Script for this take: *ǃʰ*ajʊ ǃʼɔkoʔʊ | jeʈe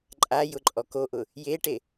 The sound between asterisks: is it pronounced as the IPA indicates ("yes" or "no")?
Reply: no